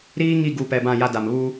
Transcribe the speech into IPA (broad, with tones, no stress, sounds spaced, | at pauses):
ɾ iː˦ ŋ i˦˨ ɡ u˨ p ɛ˨ b ã˦˨ j a˦ d a˨ m β u˦